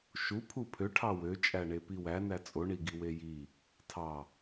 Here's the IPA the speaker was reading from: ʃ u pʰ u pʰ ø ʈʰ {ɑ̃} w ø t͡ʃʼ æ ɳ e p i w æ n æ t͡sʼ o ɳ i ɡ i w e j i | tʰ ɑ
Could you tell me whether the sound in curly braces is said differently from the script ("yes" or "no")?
yes